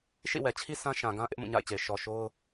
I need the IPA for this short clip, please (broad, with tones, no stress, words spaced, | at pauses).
ʃḭ˦˨wɛ˨t͡ɕʰi˦ sã˦ʃã˨ɡã˦ ʔɪ˦ʔmũ˦˨ɲa̰˦˨ɪ̯t͡ɕe˨ɪ̯ ʃɔ˨ ʃo˦ʊ̯